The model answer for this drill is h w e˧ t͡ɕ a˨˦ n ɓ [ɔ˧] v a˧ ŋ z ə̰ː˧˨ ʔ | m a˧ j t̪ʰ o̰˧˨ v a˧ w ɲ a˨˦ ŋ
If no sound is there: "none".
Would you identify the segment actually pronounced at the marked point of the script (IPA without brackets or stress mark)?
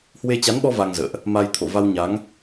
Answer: ɔ˧